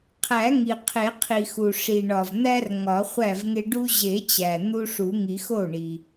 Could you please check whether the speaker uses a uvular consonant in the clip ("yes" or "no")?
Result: yes